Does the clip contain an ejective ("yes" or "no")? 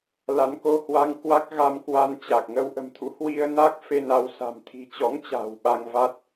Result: no